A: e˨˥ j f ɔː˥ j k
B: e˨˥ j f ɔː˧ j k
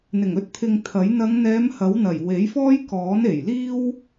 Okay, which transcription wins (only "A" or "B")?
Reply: A